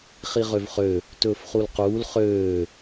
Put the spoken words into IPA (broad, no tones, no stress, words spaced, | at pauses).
χiʁøvχø | tɵːfχulquːl χøː